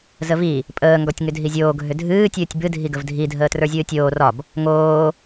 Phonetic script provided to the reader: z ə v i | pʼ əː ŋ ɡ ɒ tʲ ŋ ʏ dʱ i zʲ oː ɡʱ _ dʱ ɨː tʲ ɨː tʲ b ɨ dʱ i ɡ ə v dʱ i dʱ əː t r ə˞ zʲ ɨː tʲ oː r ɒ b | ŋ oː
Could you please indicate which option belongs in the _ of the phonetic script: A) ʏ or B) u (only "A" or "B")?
A